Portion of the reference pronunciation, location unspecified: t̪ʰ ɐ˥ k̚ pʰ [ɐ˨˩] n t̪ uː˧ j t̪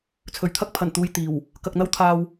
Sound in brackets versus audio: correct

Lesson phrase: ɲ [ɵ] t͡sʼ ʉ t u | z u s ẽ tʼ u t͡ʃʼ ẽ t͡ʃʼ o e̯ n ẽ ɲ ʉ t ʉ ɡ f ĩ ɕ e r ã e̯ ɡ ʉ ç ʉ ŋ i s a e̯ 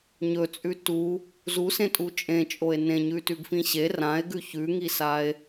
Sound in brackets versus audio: correct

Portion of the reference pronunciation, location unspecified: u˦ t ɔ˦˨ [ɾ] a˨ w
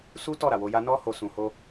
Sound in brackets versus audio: correct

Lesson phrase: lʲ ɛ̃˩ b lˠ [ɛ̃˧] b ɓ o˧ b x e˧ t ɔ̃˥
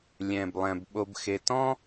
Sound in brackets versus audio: incorrect: ɛ̃˩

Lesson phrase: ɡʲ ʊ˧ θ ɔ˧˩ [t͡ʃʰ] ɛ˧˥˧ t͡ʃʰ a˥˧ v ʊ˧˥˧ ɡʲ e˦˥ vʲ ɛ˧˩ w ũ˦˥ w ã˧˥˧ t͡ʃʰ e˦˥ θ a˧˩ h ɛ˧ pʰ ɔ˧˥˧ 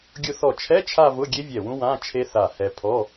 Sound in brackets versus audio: correct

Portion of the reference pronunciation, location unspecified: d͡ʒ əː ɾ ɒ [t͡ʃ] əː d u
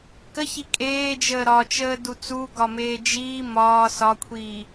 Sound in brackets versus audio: correct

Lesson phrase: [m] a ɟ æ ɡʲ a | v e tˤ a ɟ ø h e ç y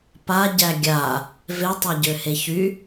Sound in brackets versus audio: incorrect: p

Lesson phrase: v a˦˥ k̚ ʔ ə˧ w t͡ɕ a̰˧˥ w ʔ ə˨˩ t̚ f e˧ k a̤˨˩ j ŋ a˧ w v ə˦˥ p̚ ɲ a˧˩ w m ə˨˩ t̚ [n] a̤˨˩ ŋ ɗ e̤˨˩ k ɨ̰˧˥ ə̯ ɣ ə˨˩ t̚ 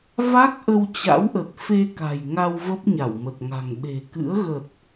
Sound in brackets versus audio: incorrect: ŋ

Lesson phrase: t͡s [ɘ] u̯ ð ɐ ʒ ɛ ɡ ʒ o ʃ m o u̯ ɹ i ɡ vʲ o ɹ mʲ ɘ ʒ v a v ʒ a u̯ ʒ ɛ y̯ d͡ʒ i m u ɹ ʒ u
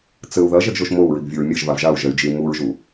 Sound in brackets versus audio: correct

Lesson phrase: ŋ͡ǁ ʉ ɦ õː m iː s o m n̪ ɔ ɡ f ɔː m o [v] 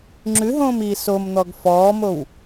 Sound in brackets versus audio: incorrect: w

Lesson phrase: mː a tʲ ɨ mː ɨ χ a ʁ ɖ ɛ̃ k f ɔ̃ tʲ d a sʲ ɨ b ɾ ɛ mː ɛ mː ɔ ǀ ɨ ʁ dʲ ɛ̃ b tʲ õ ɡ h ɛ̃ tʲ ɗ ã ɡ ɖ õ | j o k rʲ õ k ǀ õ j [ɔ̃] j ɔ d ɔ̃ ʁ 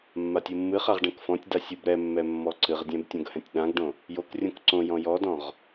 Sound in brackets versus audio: correct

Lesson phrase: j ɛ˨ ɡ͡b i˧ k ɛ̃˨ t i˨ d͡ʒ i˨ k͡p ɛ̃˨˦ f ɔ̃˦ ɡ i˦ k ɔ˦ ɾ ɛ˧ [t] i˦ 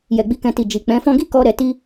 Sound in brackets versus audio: correct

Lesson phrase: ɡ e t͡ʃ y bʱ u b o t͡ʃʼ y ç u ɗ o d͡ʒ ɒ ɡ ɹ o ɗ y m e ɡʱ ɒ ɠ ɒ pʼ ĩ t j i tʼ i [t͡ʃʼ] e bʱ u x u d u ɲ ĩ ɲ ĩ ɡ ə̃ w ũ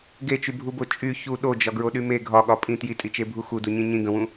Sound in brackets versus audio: incorrect: t͡ʃ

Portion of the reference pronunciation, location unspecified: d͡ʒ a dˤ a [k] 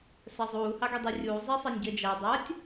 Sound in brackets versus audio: incorrect: tʲ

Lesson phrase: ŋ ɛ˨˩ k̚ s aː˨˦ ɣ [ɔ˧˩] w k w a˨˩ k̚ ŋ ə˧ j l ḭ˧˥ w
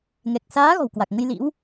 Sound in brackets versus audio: incorrect: ɔ̤˨˩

